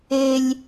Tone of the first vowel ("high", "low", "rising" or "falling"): low